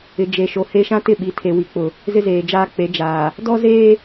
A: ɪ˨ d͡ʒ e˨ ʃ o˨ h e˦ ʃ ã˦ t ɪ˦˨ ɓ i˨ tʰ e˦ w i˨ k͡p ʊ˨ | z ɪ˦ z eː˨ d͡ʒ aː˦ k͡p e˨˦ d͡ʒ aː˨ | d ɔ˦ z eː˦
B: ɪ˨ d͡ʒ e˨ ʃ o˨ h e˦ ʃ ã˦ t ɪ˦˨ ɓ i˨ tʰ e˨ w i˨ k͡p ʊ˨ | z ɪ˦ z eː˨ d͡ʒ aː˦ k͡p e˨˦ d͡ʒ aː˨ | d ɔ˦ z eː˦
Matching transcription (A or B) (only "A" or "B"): B